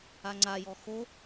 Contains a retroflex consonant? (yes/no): no